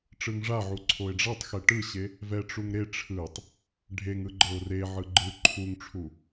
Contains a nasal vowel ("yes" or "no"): no